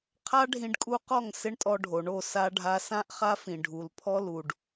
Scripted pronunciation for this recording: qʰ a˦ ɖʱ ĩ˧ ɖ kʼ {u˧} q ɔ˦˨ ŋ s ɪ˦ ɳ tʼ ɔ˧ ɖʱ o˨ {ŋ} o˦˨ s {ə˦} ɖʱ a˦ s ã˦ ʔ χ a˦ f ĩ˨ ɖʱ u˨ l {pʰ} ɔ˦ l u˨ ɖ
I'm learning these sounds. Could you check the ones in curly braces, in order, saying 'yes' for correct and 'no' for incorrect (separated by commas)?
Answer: yes, no, no, yes